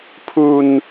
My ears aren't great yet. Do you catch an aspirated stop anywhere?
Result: yes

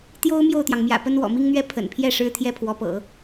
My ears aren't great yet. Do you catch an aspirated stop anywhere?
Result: yes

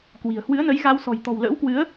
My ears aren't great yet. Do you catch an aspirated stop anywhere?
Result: no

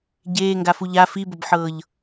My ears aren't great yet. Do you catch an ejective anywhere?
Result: no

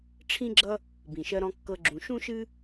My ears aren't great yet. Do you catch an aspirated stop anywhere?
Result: yes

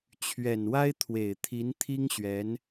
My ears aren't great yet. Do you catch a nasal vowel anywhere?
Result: no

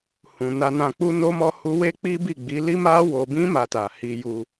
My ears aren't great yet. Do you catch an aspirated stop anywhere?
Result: no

